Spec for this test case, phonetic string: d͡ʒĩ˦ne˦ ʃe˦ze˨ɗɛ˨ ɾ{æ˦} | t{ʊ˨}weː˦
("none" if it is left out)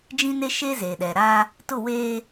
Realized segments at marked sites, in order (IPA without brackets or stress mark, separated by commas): a˦, ʊ˦˨